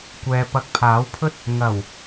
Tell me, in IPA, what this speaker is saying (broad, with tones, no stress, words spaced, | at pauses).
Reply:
kʷɛː˧pɐ˧k̚ pʰaː˨˥wpʰɵ˥t̚ | ŋɐ˨˩w